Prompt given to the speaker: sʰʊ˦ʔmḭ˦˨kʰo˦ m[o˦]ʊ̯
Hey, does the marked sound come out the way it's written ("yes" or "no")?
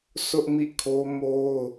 yes